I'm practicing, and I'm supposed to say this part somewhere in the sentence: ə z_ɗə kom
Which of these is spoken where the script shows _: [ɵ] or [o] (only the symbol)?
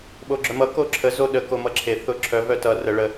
o